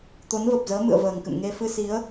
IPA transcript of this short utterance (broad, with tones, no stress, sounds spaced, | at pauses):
t̪ o˨˦ n v ə˨˩ p̚ z əː˨˦ m ɨ̰˧˨ ə̯ v əː˨˩ ŋ k ɨ̰˧˨ m ŋ e˧ f ɨ˧ s i˨˦ ə̯